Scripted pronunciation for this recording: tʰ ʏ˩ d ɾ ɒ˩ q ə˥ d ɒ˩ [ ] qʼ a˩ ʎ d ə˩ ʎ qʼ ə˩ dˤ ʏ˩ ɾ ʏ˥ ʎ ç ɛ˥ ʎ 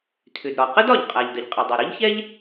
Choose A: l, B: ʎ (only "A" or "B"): B